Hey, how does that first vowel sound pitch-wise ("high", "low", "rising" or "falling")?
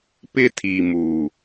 high